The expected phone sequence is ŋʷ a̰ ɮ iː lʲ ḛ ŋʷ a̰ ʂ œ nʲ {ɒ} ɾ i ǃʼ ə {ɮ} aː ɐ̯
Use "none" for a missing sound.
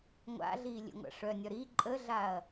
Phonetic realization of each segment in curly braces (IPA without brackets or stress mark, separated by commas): ɒ, ɮ